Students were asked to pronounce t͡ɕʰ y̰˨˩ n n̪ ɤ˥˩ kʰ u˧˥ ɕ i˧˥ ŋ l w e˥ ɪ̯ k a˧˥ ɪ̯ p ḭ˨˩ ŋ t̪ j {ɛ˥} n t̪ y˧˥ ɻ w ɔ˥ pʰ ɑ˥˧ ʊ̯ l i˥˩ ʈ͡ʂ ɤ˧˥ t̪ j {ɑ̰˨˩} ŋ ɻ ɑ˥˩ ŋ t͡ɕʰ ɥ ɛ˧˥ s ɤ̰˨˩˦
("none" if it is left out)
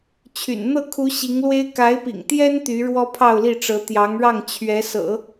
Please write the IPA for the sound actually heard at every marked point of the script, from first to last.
ɛ˥, ɑ˧˥

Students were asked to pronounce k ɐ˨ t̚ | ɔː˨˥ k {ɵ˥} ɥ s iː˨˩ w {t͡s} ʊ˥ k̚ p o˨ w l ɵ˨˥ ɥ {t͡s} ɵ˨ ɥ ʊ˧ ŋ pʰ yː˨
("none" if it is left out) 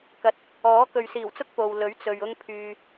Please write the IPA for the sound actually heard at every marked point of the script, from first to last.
ɵ˨, t͡s, t͡s

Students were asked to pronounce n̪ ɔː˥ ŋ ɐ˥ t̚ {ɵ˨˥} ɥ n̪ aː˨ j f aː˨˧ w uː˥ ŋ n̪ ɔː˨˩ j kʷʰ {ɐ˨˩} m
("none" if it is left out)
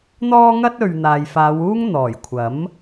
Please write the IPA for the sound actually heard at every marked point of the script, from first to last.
ɵ˨, ɐ˨˥

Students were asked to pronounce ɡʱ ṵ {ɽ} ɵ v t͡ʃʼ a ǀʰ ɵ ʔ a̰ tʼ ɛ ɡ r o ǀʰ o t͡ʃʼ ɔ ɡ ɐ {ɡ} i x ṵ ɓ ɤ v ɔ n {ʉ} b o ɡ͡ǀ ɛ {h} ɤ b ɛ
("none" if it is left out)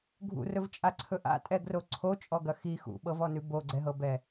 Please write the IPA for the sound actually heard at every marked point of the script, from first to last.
r, x, ʉ, ɦ

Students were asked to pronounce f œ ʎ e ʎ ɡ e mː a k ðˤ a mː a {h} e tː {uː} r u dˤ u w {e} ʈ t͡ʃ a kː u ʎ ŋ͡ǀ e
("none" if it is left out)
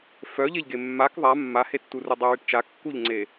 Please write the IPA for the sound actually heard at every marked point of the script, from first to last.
h, u, e

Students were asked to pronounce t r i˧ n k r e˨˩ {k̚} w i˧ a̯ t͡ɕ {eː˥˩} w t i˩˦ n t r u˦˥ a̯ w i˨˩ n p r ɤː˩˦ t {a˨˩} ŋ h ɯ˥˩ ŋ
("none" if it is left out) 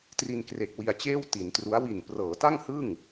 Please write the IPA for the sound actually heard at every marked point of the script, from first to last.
k̚, eː˥˩, a˥˩

